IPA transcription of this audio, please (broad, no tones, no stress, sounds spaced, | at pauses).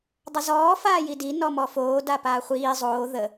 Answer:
dˤ ə z ɔː f aː j i d i n ɔ m ɔ f oː d a p aː χʷ iː zˤ oː ð ə